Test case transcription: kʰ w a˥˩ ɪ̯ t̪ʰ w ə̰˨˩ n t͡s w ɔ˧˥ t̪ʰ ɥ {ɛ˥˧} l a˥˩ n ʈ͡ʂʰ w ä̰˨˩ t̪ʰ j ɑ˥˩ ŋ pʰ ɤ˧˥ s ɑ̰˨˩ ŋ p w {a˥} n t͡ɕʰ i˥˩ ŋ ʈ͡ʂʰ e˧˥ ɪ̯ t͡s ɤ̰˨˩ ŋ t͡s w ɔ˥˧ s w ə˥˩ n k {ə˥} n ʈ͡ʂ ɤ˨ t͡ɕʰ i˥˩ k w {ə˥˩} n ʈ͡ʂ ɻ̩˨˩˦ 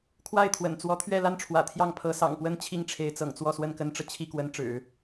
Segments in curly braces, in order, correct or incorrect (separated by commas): correct, incorrect, correct, incorrect